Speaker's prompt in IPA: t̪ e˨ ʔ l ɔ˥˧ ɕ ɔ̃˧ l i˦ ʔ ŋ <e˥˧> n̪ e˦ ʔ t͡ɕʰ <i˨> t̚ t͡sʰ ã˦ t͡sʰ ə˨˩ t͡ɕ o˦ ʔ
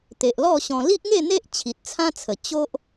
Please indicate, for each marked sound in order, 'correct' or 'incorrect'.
correct, correct

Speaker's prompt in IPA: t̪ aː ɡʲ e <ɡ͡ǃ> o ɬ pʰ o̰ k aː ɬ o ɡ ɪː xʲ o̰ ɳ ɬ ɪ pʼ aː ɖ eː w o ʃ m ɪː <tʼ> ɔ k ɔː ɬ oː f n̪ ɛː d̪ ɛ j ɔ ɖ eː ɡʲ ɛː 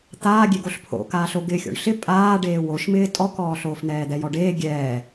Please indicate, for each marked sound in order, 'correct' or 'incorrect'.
incorrect: ɡ, correct

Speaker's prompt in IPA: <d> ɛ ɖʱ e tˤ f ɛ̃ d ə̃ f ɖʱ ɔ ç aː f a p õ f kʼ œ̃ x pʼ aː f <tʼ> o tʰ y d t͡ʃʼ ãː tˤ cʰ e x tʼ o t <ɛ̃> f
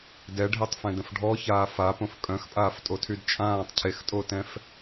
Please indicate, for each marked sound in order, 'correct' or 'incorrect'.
correct, correct, correct

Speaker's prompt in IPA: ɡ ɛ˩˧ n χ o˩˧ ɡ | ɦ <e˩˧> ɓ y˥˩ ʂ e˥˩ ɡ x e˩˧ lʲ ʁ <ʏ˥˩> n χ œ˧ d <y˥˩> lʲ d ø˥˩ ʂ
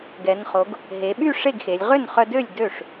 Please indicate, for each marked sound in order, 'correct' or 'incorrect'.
correct, correct, incorrect: ø˥˩

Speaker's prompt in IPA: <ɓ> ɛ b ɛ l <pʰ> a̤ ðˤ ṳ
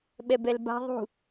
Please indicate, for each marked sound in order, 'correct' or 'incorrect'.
correct, incorrect: b

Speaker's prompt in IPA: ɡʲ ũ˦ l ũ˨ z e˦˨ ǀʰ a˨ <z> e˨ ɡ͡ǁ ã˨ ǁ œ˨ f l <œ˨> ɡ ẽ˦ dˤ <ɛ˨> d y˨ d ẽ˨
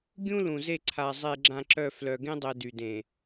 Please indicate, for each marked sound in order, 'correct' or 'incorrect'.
incorrect: zˤ, correct, correct

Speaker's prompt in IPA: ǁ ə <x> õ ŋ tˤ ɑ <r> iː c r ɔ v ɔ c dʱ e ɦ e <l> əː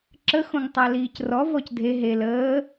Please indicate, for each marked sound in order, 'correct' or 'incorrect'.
correct, incorrect: l, correct

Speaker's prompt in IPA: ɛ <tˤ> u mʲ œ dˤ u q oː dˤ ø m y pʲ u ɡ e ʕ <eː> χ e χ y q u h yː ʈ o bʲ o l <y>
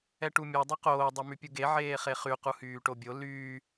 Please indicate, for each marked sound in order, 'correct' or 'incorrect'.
incorrect: ʈ, correct, incorrect: yː

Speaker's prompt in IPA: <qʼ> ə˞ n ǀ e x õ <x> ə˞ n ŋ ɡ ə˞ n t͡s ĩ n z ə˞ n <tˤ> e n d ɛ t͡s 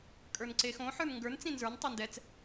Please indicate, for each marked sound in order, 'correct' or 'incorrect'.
incorrect: kʼ, incorrect: ħ, correct

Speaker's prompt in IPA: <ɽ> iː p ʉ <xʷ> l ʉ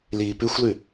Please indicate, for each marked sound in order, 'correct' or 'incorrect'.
incorrect: l, correct

